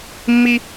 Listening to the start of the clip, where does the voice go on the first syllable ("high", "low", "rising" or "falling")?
high